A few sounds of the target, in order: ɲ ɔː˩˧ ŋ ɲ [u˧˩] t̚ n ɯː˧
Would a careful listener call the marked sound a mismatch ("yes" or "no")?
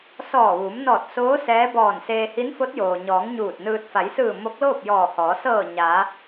yes